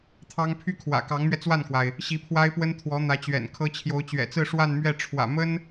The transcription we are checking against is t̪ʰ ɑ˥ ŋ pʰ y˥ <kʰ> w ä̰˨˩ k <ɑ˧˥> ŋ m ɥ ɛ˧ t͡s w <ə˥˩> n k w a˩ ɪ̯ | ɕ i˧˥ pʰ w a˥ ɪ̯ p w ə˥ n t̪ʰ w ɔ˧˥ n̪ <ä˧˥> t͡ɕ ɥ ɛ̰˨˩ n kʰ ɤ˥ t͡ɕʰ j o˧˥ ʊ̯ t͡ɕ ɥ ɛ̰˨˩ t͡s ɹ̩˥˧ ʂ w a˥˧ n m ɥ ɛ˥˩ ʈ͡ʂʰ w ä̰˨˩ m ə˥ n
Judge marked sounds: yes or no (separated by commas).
yes, yes, no, yes